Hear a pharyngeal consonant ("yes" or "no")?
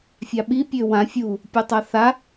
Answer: no